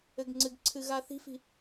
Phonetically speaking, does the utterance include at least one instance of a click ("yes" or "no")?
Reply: yes